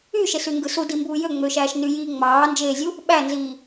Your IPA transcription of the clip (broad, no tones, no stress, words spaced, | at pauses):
yʃesy ŋɡɯsudimbuː jøŋ͡møʃæːʃ nyjiː ŋ͡mɑːnd͡ʒeːzʲu | ɓænziː